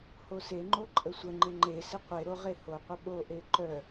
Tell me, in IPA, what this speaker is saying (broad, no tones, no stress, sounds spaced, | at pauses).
h o s e ŋ͡ǃ o ǃʼ ə sʷ ə ŋ͡ǃ ɪ ŋ͡ǃ e s ɪ qʷ e ɾ o ʁ e h o qʷ ə ɓ o ʔ e ǃ œ